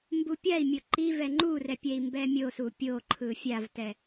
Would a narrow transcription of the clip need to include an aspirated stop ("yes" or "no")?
yes